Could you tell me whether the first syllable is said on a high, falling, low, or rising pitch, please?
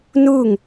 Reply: falling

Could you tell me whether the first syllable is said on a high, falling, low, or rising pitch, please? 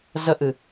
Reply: high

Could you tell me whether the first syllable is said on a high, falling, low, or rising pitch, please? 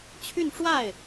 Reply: falling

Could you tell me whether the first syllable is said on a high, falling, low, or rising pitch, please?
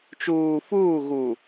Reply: low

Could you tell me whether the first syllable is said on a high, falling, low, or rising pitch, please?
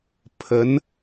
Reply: rising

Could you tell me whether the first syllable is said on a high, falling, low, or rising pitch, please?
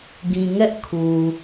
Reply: low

